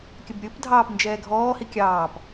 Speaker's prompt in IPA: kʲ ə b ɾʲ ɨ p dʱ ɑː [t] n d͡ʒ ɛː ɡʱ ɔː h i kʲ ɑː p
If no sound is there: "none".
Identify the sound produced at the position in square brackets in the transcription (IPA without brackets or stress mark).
p